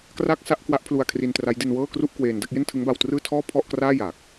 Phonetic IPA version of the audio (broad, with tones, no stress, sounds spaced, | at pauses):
k r a˥˩ k̚ s a˥˩ ʔ k w a˦˥ ʔ pʰ l u˧ a̯ kʰ r i˧ n t r a˦˥ j d i˧ n w ɤː˥˩ k r u˥˩ ʔ k w eː˧ n d a˦˥ k̚ j e˥˩ n tʰ ɯ˦˥ ŋ b a˧ w t r ɯː˥˩ tʰ ɔː˥˩ pʰ ɔ˥˩ ʔ k r aː˥˩ j aː˨˩ k̚